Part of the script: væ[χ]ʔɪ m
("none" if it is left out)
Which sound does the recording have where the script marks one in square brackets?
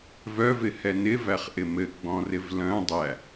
χ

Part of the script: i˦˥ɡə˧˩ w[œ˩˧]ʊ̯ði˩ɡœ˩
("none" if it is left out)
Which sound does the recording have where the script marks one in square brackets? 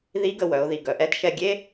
œ˩˧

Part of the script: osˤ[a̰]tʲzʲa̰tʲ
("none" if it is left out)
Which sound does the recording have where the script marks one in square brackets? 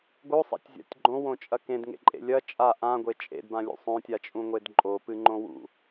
a̰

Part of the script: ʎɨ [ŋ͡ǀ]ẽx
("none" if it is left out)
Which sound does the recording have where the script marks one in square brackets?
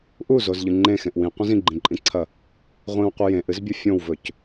ŋ͡ǃ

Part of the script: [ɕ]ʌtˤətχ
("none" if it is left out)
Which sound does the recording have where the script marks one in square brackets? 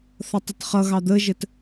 θ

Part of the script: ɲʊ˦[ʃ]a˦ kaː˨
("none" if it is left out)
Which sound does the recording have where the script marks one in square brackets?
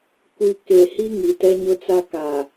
t͡s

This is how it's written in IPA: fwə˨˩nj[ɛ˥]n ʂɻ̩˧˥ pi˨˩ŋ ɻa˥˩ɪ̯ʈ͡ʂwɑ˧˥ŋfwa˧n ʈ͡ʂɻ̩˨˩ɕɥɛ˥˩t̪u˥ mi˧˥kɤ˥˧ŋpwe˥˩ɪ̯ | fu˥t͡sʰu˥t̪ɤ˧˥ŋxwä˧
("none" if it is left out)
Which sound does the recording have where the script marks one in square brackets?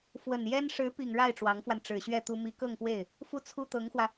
ɛ˥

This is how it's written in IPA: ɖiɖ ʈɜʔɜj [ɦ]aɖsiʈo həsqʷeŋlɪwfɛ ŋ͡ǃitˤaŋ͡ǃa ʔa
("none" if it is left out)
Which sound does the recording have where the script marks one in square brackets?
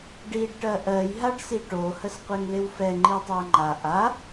ɦ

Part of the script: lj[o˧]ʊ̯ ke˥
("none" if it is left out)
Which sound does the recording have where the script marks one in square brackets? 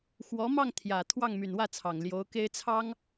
o˧˥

